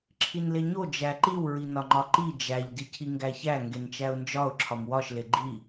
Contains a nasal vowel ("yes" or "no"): no